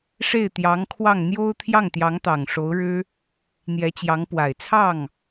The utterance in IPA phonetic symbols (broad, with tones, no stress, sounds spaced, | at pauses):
ʂ e˥˩ ɪ̯ t̪ j ɑ˧˥ ŋ kʰ w ɑ˥˩ ŋ n̪ j o˥ ʊ̯ t̪ʰ j ɑ˥˩ ŋ t̪ j ɑ˧˥ ŋ t̪ ɑ˨˩ ŋ ʂ o˧˥ ʊ̯ ɻ ɻ̩˥ | n̪ j ɛ˧˥ t͡ɕ j ɑ˧˥ ŋ p w a˨˩ ɪ̯ t͡sʰ ɑ˥˩ ŋ